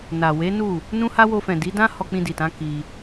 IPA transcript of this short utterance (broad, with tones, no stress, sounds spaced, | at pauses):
n a˨ w e˨˦ n u˦˨ | n ũ˦ h a˦ w o˧ f ɛ̃˨ d i˨˦ d ã˦ h ɔ˧ k͡p ĩ˧ d i˨ t ã˨˦ k i˧